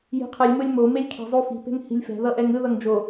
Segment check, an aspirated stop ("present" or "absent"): present